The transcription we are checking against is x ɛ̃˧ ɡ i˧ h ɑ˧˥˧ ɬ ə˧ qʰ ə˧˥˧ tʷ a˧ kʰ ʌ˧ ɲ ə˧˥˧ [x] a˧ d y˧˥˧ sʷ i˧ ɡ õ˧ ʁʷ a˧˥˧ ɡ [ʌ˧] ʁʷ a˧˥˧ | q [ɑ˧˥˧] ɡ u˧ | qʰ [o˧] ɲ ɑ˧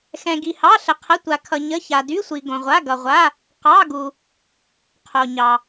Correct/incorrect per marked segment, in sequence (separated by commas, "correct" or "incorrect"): incorrect, correct, correct, correct